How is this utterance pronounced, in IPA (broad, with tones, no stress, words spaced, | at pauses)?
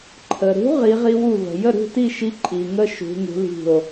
ǃʰə˨ɾṳ˧˥ ʁi˧˥ʁi˥wu˥˨və̤˨ jə˥˨ɾṳ˥˨ti˥˨ʃi˧˥ ǃʼi˨ŋə˥ ʃṳ˧˥ŋṳ˧˥li̤˥˨o̯